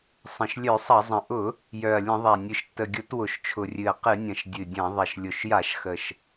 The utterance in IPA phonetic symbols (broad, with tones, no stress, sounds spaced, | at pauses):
sˤ ə̃˨˩ ʃ lʲ œ˧˩˧ sˤ ɐ˧˩˧ zˤ ə̃˨˩ ʔ ʊ˧˩˧ | j œ˨˩ ɐ̯ lʲ ə̃˧˩˧ ðˤ a˨˩ nʲ ɨ˨˩ ʃ tː ə˨˩ ɡʲ ʊ˧˩˧ t w ʊ˨˩ ʃ t͡ʃʰ ʊ˨˩ rʲ ɨ˨˩ ɐ̯ q ɨ˧˩˧ nʲ ɐ̃˨˩ ʃ dʲ ɨ˨˩ dʲ ɐ̃˧˩˧ ðˤ ɐ˨˩ ʃ lʲ ʊ˨˩ ʃ j a˧˩˧ ʃ x ə˨˩ ʃ